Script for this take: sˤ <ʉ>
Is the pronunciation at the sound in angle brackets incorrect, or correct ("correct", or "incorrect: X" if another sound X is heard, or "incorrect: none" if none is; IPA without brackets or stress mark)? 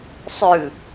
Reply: correct